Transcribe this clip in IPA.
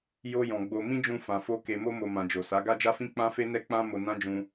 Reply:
jo˧ jɔ̃˨ɡ͡bo˧ mĩ˦d͡ʒũ˧ fã˨fo˧ ke˨mo˧mo˨ mã˨d͡ʒo˨sa˨˦ ɡa˦d͡ʒa˦fĩ˦ k͡pã˦fe˦nɛ˦ k͡pã˦ mo˧nã˦d͡ʒũ˧

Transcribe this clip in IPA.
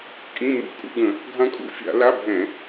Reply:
kʼĩ˧˥˧mṵ˧˥˧ kʼṵ˧ɡə̃˧˩˧ | ɡʱã˧kʼṵ˧fʲa̰˧˩˧ la˧˥˧bʱɛ̃˧˩˧

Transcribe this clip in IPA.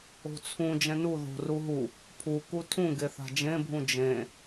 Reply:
o̤t͡sʰũ d͡ʒɛ̃nu ðo̤ ruɦu | pʰu kutʰũɡe θa̤d͡ʒẽbʱũ d͡ʒẽ

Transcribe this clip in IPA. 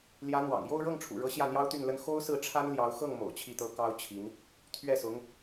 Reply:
ljä˧˥n̪wɑ̰˨˩ŋ jo˥˧ʊ̯ɻɤ˥˩ŋʈ͡ʂʰṵ˨˩ɻɤ˧˥ ɕjä˥˩n̪jɑ˥ʊ̯t̪y˥˩nlə˥n xo˥ʊ̯sɹ̩˥˩ʈ͡ʂʰa˥n ljɑ˧˥ʊ̯ xɤ˥˩ŋ mo̰˨˩ʊ̯t͡ɕʰi˥˩t̪ɤ˥ kɑ˥ʊ̯t͡ɕʰi˧˥n | t̪ʰɥɛ˥˩sʊ˧˥ŋ

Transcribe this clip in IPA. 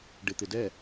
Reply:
ɖɪt̪ɪ dɛ

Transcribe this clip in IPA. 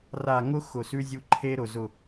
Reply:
ra˨ ŋʊ˦ xʊ˨sʉ˦zʲu˦ ǃʰe˦ɾʊ˨ zʊ˨

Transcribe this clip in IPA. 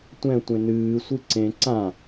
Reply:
tʷɛ̃tʷẽ nɨːsʷɨ ǀẽ ǀã

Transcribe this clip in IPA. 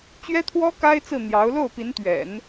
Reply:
t͡ɕɥɛ˥t̪ʰwɔ˥ ka˥ɪ̯t͡sɹ̩˥˩ n̪jɑ˧˥ʊ̯ lo˥˩ʊ̯pi˧˥nt̪ɥɛ̰˨˩˦n

